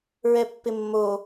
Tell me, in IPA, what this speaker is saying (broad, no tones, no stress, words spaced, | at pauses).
ɹɛpːɪmːo